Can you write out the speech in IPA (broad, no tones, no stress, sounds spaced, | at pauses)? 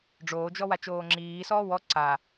ɖ͡ʐ oː d͡ʒ ɔ w a t͡ʃ oː ŋ͡ǁ iː s ɔː w ɔ ǀ a